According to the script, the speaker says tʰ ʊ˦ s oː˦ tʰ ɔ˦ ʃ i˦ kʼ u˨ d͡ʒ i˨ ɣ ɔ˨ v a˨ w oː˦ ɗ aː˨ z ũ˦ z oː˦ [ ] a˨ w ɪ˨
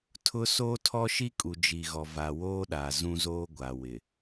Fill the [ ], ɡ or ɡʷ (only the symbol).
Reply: ɡʷ